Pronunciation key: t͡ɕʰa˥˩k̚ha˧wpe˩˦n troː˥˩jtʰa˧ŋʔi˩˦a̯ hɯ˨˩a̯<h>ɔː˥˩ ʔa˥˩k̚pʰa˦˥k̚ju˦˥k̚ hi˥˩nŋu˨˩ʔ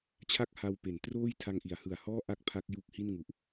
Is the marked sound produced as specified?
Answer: yes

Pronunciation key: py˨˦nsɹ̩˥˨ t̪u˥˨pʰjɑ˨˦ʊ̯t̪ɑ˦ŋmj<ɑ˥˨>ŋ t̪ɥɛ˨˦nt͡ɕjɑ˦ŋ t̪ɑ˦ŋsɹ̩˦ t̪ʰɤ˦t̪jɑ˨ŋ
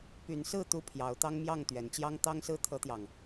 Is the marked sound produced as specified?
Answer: yes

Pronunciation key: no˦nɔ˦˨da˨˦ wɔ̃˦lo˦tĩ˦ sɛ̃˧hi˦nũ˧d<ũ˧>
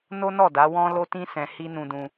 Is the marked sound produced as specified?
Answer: yes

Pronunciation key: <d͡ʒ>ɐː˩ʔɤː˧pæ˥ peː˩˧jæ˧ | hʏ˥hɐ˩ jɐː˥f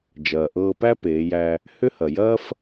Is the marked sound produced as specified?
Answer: yes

